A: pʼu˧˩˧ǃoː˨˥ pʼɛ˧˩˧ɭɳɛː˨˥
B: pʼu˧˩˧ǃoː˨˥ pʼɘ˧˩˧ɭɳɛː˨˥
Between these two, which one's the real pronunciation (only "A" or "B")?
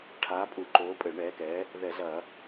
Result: B